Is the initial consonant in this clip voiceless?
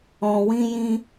no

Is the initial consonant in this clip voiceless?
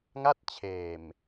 no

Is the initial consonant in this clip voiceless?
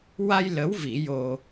no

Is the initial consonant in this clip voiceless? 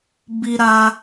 no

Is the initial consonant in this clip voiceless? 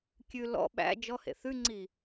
yes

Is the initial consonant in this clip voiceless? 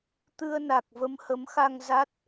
yes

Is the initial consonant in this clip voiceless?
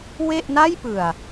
no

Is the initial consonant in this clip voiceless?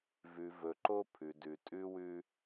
no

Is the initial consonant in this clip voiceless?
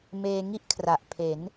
no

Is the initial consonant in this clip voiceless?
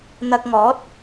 no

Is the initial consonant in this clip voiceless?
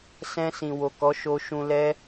yes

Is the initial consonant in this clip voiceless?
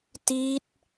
yes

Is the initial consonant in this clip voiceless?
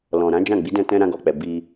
no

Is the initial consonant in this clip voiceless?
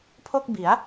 yes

